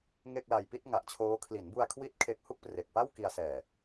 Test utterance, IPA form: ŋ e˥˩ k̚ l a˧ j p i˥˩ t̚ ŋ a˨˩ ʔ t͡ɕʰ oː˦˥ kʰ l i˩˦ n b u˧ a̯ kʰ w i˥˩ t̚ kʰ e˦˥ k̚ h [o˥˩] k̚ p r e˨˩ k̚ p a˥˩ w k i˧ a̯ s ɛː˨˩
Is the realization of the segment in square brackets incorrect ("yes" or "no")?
yes